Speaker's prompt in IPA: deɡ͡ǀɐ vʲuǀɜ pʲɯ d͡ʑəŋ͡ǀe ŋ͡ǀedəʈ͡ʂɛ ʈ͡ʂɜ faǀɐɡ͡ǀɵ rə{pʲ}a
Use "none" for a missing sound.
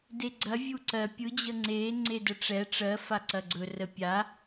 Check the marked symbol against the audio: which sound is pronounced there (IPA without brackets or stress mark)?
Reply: pʲ